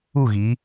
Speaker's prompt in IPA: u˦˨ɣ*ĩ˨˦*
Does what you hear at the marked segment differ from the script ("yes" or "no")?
yes